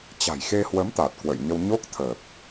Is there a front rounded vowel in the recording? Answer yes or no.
no